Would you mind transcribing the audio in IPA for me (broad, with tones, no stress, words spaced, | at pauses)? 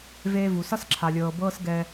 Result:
veː˦vu˨ sʌ˦sǁʰa˨lʲɤː˨ bɤː˦sɡɛː˧